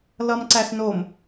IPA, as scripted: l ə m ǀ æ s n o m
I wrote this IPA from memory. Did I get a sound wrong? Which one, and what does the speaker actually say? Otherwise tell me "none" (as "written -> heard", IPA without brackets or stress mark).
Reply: ə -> ʌ